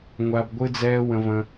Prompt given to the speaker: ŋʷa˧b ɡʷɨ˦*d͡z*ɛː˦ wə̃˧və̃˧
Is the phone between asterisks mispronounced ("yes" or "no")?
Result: no